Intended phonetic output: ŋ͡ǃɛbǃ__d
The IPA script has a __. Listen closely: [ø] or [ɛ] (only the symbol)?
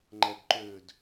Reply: ø